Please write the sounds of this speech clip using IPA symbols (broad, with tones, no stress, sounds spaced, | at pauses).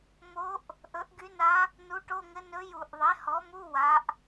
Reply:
m o˧˥ ʔ | ʔ ɵ˩˥ ʔ ɡ y˧˥ n a˧˥ | n u˧˥ ʈ o˧˥˧ ŋ ɘ˧˥ n ɵ˧˥ j u˧˩˧ ʔ ðˤ e˩˥ h ɔ˩˥ m u˧˥˧ w a˩˧ ʔ